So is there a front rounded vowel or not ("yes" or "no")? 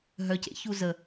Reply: yes